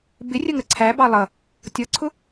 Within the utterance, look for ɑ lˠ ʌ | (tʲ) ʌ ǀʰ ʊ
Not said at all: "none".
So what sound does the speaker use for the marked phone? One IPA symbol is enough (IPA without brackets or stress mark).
tʲ